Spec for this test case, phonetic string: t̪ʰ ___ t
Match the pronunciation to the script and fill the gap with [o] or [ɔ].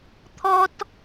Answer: ɔ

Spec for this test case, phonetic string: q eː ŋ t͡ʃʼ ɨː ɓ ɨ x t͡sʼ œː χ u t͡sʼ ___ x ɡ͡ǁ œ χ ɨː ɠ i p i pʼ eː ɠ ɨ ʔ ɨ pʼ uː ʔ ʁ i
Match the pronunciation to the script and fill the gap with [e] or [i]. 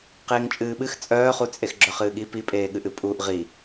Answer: e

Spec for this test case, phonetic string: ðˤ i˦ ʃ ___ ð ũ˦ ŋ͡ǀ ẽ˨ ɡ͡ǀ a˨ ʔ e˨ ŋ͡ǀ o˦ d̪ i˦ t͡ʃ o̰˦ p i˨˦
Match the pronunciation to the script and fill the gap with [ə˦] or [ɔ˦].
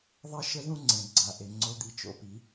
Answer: ə˦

